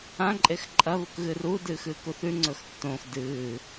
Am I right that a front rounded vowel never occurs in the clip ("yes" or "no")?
yes